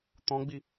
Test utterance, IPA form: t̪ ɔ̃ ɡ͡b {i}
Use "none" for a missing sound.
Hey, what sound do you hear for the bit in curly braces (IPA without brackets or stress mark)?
i